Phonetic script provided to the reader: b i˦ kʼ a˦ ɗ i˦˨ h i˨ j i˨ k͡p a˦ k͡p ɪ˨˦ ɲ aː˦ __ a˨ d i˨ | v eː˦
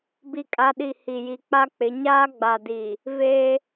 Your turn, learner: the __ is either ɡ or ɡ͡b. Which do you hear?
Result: ɡ͡b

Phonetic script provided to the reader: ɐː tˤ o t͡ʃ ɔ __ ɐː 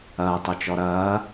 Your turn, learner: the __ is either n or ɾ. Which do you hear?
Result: ɾ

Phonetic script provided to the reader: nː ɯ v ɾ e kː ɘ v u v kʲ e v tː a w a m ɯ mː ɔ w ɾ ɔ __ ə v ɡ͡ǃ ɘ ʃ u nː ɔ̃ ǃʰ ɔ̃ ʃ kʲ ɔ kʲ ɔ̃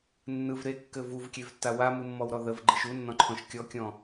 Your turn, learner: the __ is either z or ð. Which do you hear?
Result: ð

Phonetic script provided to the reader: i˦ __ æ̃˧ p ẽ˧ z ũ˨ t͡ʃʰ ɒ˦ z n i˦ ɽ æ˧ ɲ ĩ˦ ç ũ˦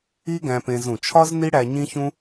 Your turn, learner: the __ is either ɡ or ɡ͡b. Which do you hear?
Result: ɡ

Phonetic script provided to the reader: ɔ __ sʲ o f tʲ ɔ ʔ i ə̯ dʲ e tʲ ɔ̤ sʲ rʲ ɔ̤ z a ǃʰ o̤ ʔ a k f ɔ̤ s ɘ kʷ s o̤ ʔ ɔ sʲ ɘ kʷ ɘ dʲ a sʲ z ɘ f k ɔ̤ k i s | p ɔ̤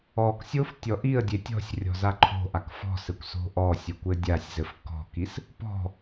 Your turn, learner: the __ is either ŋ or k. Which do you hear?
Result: k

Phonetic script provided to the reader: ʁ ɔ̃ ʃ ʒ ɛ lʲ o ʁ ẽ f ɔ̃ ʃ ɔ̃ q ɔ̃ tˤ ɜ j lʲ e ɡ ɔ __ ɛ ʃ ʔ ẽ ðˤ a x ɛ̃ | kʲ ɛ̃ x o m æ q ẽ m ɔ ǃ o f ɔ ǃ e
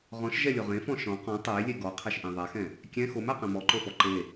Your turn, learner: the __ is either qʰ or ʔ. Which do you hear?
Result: qʰ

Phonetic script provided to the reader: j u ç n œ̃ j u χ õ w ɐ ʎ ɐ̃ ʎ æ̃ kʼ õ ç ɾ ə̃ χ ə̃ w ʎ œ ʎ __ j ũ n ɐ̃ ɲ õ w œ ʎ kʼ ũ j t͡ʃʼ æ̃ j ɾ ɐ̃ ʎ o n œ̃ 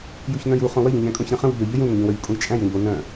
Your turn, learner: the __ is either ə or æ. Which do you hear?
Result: ə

